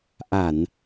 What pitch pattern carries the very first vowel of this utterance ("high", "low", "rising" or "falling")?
low